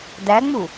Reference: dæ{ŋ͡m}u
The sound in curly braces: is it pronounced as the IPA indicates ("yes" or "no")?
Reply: yes